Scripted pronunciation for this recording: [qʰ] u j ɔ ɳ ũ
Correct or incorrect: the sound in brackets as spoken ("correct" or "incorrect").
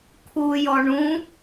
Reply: incorrect